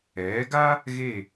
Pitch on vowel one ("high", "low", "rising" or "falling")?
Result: rising